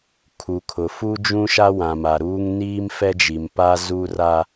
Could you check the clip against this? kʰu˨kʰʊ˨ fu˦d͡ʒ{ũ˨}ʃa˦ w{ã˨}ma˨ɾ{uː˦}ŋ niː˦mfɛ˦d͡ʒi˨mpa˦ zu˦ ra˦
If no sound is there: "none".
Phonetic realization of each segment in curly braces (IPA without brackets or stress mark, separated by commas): ũ˦, ã˨, uː˦